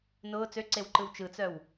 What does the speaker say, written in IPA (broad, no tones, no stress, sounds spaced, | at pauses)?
n ʊː t͡s ø ǀ e w ǃ ɯ w t͡ʃ ɯ t͡s œ w